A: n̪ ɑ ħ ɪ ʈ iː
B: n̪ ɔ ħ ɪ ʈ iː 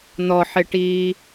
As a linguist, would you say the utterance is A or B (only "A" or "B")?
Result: B